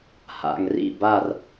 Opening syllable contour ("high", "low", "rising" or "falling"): low